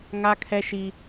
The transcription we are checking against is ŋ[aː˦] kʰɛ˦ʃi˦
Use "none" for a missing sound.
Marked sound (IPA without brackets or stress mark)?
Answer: a˦